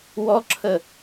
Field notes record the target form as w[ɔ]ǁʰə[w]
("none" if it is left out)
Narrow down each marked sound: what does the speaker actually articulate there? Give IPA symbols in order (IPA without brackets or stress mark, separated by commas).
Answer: ɔ, none